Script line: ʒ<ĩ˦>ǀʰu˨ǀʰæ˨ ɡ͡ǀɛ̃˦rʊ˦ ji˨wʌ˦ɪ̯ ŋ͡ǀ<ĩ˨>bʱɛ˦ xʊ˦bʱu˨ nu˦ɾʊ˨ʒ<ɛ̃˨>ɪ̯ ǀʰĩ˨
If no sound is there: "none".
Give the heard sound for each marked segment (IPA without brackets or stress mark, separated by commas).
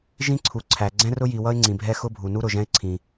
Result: ĩ˦, ĩ˨, ɛ̃˦